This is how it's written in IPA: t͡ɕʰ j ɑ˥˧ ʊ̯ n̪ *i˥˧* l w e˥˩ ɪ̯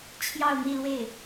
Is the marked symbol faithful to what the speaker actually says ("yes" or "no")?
yes